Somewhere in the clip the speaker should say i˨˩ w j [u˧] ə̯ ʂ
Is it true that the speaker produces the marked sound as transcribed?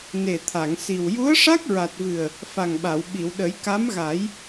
no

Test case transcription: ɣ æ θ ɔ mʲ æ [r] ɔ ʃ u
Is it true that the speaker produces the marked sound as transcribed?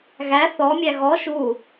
no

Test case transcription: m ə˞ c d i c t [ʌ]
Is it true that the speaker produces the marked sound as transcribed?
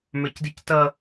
yes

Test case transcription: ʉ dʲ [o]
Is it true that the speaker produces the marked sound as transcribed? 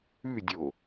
yes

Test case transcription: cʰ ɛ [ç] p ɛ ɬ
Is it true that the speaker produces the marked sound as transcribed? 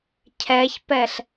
yes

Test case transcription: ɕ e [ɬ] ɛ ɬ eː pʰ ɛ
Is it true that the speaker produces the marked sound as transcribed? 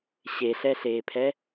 yes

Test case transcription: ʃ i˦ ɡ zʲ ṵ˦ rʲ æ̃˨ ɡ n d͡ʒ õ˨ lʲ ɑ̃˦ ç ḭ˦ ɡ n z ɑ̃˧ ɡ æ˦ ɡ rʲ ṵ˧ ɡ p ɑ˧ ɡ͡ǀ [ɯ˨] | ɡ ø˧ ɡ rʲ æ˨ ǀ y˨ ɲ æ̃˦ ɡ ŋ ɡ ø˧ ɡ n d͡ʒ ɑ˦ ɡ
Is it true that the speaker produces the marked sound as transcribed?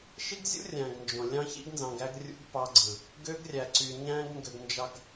yes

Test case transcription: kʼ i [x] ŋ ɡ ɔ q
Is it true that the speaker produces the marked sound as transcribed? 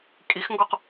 yes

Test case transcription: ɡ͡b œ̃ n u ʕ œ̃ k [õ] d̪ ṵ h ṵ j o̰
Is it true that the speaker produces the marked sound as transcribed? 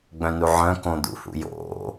yes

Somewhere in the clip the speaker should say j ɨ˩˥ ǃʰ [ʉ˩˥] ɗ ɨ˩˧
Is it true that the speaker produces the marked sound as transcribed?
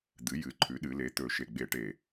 yes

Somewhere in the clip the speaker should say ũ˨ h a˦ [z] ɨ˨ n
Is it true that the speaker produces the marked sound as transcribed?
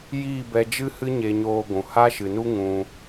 no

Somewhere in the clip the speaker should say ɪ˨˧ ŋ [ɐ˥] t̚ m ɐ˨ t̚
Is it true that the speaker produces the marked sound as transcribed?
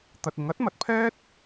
no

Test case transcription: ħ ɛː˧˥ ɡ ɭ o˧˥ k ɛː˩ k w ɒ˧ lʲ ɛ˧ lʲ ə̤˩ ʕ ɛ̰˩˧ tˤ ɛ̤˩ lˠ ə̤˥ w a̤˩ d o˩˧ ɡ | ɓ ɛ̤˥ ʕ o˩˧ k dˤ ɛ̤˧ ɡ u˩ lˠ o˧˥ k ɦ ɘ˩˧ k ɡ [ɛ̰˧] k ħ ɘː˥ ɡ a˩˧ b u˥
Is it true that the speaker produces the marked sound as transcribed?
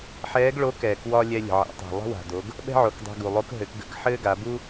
no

